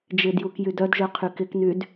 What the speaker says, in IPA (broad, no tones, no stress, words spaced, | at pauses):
d͡ʒɪdjuk jydœdʒœ qʰykɪknyd